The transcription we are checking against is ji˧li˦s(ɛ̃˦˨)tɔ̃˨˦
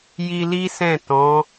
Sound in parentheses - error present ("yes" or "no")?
no